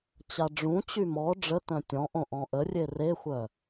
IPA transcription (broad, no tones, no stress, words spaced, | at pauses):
t͡ɕaɖ͡ʐũt͡ɕy mɔ ɖ͡ʐətœ̃ tʲɔ̃ʔõ ʔɔ̃ʔərʲe rexʷœ